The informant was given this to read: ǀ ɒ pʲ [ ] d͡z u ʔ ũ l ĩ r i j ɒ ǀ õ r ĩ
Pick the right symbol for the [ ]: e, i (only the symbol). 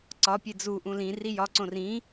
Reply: e